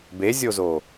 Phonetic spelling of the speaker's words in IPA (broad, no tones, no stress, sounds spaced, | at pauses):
b e zʲ o z o